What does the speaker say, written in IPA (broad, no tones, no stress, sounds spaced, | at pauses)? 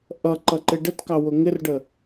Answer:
ʔ ʌ ǃ ʌ ǃ ɪ ɖ ə t k ɑ w ʊ ŋ ɪ r ɖ ə